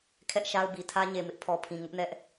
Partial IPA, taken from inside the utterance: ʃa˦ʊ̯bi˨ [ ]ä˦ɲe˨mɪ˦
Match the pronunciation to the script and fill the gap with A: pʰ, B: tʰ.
B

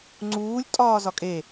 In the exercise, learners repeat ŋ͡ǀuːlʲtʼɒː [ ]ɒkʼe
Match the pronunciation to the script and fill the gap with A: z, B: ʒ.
A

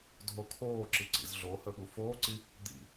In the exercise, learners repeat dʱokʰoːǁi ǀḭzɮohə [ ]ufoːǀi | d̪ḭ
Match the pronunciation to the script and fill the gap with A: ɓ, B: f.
A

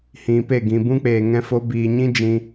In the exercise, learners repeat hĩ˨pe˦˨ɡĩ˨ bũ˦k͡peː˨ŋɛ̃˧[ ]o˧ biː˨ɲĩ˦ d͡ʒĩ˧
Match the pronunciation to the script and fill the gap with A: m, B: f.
B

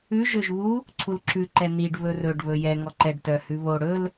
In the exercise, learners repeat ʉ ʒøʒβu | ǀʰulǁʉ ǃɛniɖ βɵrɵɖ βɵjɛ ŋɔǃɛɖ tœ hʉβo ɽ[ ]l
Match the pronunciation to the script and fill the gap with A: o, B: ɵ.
B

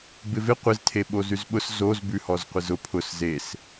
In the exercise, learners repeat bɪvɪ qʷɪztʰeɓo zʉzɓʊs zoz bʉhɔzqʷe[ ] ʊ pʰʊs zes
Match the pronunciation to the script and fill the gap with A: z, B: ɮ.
A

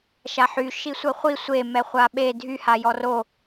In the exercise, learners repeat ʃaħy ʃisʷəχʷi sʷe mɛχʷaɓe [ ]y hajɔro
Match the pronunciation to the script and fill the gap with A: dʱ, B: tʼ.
A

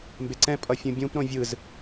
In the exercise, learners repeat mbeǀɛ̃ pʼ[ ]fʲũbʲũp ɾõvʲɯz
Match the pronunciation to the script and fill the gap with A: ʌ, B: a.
A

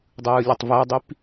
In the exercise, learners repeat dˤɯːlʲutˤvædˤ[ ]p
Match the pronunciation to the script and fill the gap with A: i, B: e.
A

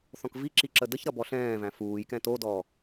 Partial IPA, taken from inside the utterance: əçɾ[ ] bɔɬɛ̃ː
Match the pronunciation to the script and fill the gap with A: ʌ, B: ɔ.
A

